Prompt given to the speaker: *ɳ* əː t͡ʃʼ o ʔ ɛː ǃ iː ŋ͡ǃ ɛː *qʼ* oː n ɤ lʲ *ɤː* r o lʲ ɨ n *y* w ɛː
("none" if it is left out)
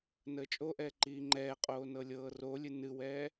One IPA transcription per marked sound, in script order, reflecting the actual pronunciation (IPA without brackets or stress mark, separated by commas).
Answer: n, qʼ, ɤː, ɨ